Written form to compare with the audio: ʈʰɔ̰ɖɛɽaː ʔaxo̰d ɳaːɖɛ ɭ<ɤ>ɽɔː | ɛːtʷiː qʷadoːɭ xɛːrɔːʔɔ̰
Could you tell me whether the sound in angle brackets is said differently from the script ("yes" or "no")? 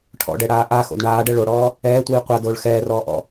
yes